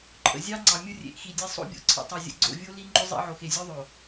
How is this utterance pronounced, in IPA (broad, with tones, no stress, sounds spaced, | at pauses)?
ǃʼ ə̰˨ zʲ ɑ˦ ŋ͡ǀ ɑ˨ mʲ ʊ˦ rʲ ḛ˨ ʔ x i˨ dʲ e˦ sˤ o̰˦ bʲ o̰˨ ǀʰ ə̰˨ tˤ e˨ zʲ ə̰˨ ɡ͡ǀ o̰˦˨ vʲ o˦ l i˦ ŋ͡ǃ ʊ˦ zˤ ḛ˦ ʕ o˨ x e˨ zʲ o˦ ðˤ o˨